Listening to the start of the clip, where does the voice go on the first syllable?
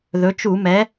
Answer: rising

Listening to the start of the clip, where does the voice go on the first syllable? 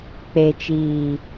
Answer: low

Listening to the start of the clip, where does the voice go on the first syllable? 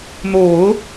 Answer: low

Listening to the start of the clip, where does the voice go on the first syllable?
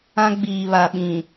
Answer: high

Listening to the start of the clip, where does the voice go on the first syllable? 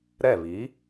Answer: falling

